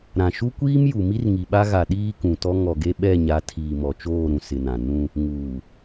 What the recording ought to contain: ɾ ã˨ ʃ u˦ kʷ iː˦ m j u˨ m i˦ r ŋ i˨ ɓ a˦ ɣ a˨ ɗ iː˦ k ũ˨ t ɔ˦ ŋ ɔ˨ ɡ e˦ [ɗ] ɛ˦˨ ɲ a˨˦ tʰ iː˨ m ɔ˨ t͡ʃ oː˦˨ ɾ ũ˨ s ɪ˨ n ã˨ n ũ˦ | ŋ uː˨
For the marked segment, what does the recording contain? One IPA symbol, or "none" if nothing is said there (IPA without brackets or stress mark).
ɓ